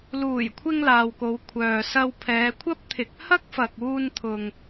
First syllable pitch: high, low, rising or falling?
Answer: low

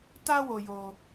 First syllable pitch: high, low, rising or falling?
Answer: high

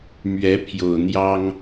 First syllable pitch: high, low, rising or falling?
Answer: rising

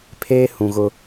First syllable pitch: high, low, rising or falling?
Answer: high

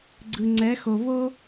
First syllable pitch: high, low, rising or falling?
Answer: low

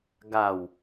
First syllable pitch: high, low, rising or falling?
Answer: low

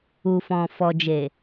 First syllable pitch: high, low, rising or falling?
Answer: low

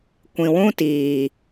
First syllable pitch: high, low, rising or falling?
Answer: low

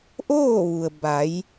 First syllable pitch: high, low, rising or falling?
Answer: falling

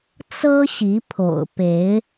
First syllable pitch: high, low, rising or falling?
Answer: high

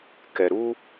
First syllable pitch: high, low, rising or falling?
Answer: low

